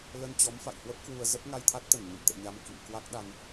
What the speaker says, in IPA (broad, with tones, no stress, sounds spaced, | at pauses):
l ə˧ n t͡ɕ ɔ˨˦ m f a̰˧˨ j h w ə˦˥ p̚ k w u˧ ə̯ z ə˦˥ p̚ ŋ a˧ j t̪ʰ a˦˥ t̚ t̪ ə˧˩ n ɲ ə̰˧˨ m t̪ ɛ̰˧˨ ɲ a˧ m k ḭ˧˨ ŋ k w a˦˥ k̚ ɗ a˧ n